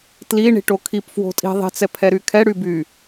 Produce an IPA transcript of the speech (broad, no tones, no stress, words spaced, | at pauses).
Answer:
tli ɳi̤ʈokʰip fwo̤tʼi̤ ðˤi̤t͡sɛ pʰɛɾykʰɛ ɽyby